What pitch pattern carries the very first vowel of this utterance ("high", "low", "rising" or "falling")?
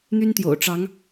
high